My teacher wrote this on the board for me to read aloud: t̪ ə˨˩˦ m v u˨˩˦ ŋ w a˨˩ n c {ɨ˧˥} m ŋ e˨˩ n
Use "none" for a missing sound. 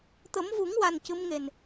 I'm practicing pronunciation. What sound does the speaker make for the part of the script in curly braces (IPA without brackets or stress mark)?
ɨ˧˥